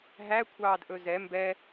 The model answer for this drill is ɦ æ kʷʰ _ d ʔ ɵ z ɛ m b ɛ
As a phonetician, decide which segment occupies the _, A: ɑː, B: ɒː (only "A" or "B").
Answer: A